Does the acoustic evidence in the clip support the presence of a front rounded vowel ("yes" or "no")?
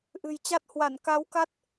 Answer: no